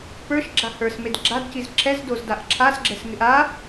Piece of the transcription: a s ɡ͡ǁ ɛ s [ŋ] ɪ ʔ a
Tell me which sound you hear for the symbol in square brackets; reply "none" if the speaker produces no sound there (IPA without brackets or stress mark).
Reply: ŋ